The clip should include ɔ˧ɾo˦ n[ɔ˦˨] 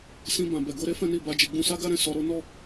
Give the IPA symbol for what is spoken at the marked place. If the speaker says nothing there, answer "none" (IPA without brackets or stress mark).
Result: ɔ˦˨